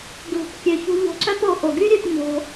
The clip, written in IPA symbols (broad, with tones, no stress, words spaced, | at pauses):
ɡlṳ˨p kʲø˨çṳ˧ ʎo̤˧ǀœ˦po˧ ʔo˨ɡy˦ɾʲø˧p ɲo̤˧